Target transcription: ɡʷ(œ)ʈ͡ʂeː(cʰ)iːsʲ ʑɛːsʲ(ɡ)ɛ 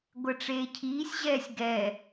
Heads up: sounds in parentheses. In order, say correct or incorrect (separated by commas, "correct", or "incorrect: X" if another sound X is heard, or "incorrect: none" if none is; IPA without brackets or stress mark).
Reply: incorrect: ɛ, correct, correct